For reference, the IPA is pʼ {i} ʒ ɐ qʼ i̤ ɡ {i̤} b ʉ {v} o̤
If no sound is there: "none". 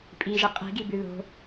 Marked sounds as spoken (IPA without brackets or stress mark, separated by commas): i, i, ð